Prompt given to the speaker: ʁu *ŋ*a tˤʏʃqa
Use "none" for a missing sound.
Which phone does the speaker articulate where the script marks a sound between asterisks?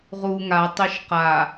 ŋ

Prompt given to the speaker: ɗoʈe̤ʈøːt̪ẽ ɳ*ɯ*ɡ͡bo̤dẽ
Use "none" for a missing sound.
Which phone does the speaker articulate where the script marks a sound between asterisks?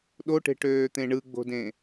ɯ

